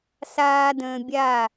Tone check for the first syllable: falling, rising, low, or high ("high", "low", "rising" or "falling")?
high